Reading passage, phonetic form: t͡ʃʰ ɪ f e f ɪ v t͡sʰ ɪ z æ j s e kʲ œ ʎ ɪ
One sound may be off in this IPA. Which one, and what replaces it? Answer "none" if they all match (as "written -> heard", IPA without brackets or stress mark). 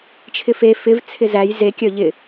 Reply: s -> z